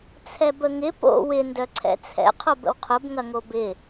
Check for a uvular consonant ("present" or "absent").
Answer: present